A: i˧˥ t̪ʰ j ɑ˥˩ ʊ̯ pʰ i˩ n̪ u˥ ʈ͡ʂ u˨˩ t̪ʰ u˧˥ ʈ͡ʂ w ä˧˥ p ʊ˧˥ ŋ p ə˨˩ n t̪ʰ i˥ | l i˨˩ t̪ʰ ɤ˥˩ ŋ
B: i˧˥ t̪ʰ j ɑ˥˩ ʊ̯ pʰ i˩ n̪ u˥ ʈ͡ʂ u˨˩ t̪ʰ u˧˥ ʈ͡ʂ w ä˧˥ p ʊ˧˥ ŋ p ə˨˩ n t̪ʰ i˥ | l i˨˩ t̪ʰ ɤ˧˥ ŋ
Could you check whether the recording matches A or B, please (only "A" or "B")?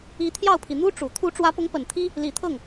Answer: A